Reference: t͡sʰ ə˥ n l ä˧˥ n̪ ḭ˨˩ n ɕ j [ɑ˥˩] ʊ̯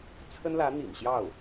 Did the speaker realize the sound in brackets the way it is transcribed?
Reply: yes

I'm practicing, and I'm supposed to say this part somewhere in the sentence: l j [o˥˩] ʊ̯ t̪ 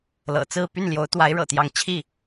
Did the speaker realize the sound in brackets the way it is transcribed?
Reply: no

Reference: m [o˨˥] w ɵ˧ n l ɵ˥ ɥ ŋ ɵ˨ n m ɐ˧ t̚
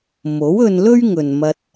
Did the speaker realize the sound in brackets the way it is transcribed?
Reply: yes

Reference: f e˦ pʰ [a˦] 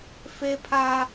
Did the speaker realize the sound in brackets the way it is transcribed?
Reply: yes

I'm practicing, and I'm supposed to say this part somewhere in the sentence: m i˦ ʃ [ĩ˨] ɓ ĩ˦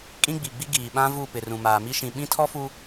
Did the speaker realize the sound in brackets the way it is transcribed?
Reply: yes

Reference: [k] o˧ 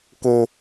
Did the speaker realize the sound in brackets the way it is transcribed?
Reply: yes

